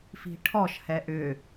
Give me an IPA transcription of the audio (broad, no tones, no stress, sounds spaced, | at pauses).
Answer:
f i̤ ʈʰ ɔ ʃ h ɛ ʔ ʏ